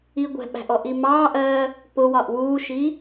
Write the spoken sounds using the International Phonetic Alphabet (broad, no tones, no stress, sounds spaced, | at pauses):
i ɡʷ ɛ̤ ɓ æ̤ ʔ ɔ ʔ i m ɑː ʔ ɜː | p ʊ w ɒ ʔ w uː ʃ i